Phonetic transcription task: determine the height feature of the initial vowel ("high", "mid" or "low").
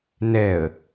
mid